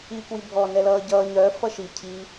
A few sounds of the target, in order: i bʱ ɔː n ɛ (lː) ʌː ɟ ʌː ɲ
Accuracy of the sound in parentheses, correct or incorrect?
incorrect